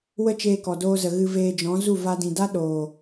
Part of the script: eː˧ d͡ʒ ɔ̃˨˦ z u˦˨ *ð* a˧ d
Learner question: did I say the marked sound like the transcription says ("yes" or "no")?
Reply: no